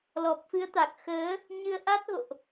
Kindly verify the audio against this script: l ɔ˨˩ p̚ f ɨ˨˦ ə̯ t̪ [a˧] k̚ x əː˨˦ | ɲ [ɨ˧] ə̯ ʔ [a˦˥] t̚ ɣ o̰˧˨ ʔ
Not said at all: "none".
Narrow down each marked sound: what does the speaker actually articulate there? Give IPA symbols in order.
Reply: a˨˩, ɨ˧, a˦˥

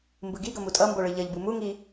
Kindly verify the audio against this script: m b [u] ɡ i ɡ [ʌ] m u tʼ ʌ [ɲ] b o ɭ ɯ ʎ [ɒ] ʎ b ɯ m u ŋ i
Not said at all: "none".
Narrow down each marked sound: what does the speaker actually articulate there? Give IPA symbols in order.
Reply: ɯ, ʌ, m, ʌ

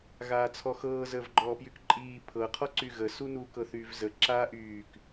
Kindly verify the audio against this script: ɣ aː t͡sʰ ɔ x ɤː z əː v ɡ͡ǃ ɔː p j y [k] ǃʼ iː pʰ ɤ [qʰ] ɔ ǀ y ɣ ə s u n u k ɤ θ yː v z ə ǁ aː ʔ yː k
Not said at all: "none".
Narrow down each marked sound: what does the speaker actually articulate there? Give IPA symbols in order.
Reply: k, qʰ

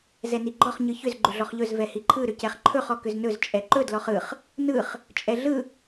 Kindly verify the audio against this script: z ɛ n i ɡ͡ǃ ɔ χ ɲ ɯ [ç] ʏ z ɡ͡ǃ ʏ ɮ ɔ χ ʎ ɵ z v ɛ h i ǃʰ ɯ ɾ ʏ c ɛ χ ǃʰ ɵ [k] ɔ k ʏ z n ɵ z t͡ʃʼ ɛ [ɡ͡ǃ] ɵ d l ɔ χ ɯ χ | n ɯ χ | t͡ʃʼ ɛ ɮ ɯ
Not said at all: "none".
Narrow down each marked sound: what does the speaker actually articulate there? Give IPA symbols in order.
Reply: ç, χ, ǃ

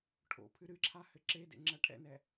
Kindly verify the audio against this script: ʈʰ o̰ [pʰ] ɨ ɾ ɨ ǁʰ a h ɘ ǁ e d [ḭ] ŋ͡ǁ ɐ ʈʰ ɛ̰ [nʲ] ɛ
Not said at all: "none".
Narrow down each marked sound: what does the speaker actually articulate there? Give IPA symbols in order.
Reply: pʰ, ḛ, n

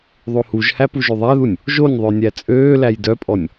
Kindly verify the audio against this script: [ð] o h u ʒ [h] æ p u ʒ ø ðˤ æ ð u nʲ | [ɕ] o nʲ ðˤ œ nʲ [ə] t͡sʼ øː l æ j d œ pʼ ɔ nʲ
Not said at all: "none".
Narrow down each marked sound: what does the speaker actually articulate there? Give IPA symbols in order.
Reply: ðˤ, h, ʒ, æ

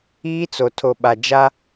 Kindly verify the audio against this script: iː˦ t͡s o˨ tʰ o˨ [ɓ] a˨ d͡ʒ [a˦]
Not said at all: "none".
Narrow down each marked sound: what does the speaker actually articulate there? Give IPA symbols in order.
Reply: ɓ, a˦

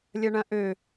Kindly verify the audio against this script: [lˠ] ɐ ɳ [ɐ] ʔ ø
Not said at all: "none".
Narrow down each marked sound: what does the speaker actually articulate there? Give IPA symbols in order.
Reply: lʲ, ɐ̃

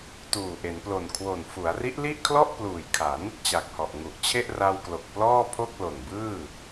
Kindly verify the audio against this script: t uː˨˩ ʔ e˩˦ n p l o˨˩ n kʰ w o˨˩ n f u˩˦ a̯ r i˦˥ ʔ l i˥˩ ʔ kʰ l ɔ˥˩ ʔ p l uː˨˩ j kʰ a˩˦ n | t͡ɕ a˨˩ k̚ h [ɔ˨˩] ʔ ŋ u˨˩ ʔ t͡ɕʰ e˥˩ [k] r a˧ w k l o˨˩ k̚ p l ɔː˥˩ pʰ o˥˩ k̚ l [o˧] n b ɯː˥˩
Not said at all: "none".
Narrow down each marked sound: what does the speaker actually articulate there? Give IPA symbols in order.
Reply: ɔ˨˩, ʔ, o˨˩

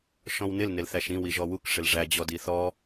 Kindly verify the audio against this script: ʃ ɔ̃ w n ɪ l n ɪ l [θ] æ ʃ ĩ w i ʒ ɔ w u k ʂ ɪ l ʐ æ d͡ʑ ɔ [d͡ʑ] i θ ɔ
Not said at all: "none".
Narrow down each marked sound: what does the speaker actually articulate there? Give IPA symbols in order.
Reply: θ, d

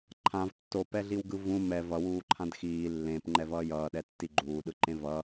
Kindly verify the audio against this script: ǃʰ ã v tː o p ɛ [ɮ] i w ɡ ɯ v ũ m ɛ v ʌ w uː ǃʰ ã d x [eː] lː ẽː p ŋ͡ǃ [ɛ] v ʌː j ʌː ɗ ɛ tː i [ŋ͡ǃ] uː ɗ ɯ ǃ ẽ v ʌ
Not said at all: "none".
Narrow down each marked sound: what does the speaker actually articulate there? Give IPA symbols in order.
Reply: ɮ, iː, ɛ, ɡ͡ǃ

